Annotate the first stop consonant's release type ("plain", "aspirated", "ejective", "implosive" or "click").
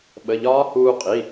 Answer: implosive